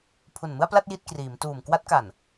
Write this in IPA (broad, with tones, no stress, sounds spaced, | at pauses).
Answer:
pʰ u˨˩ n m ɯ˥˩ a̯ p l a˥˩ t̚ j i˥˩ t̚ k r iː˩˦ m t uː˨˩ m k w a˦˥ t̚ k a˨˩ n